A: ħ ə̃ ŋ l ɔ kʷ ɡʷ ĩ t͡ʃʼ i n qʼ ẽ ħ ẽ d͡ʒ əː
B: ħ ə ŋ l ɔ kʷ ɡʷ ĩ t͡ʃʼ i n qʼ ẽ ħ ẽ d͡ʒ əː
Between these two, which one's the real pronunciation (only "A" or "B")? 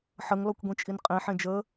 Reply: B